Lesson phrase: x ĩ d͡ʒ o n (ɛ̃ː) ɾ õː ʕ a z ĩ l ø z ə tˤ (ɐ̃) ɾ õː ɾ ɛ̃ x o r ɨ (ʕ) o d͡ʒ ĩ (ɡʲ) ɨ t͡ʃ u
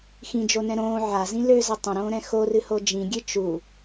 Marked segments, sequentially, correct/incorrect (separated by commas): incorrect, incorrect, incorrect, correct